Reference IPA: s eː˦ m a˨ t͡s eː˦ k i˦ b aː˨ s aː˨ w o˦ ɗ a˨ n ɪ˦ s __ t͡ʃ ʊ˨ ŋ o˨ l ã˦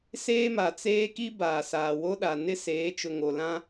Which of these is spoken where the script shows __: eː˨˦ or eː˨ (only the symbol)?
eː˨˦